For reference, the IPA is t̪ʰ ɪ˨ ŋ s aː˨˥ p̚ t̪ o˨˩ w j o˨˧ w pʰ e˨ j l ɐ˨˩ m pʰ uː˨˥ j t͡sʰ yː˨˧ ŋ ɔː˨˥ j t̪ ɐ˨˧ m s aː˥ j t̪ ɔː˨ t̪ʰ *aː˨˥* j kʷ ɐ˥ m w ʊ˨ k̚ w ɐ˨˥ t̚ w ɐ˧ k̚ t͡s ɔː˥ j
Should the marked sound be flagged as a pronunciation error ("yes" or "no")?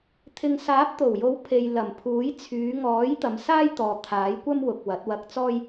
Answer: no